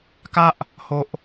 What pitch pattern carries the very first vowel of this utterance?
high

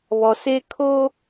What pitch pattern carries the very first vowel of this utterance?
low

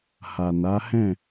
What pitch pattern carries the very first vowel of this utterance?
low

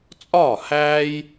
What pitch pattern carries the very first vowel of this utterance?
falling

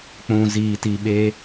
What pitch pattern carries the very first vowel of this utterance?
low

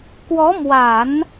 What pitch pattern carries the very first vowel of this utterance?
rising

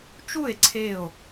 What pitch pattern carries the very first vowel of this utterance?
falling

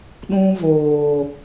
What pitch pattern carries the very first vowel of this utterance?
high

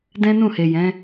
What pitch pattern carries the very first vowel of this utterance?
high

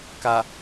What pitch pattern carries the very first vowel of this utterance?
low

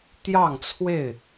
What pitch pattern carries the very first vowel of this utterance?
falling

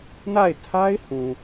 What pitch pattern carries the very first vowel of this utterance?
falling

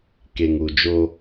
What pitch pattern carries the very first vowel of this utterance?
low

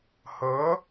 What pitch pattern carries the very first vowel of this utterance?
rising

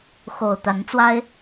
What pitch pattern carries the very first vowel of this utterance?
low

